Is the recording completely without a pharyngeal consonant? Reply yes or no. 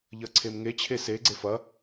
yes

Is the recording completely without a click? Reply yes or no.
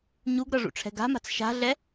yes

